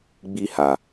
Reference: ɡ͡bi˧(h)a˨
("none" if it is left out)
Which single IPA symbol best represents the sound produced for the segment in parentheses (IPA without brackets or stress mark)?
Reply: h